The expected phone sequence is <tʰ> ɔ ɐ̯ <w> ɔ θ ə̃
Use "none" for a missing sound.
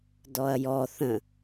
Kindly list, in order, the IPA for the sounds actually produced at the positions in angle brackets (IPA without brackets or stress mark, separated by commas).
d, j